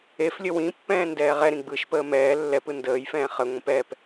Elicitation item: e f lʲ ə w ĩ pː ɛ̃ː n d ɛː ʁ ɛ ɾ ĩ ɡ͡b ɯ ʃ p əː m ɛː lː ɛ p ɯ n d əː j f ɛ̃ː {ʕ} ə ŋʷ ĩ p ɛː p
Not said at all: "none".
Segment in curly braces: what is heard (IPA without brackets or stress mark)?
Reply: χ